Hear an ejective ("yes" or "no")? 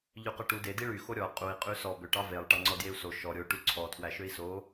yes